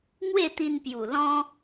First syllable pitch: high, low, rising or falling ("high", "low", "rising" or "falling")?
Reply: falling